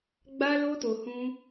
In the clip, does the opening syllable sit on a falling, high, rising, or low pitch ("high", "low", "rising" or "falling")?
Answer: high